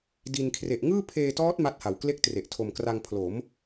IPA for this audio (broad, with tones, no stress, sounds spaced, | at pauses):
d i˧ n kʰ r e˨˩ ʔ ŋ ɯː˥˩ pʰ eː˧ t ɔː˦˥ t̚ m a˦˥ t̚ h a˨˩ w k l e˥˩ k̚ t r e˨˩ ʔ tʰ o˨˩ m k r a˧ ŋ pʰ l o˩˦ m